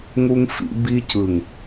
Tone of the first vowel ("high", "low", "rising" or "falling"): high